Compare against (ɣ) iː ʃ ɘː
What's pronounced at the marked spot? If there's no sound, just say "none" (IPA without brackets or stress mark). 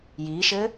j